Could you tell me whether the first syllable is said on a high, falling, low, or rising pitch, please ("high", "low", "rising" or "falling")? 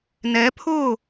rising